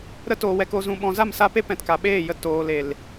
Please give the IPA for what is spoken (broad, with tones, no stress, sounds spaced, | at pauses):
ɾ ə˧ t oː˨ w ɛ˨ k o˨ z ũ˨ ɓ ɔ̃˨ z a˦˨ m s a˦ p e˦ p ɛ̃˨ t k a˨ ɓ eː˦˨ j ə˧ t oː˨ l e˨ l